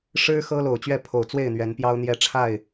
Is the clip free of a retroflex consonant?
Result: no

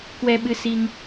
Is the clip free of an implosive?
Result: no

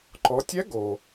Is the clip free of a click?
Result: no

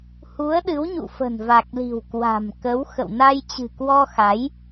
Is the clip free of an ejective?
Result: yes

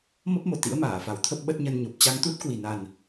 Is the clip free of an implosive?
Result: no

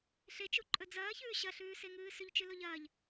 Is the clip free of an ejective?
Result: no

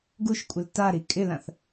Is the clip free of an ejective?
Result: no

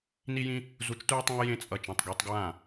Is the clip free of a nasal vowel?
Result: no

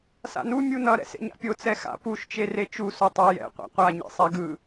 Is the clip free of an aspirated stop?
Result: yes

